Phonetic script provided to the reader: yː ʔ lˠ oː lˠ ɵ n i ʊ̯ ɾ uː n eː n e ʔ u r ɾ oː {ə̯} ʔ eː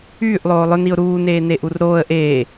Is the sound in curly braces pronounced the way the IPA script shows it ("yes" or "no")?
yes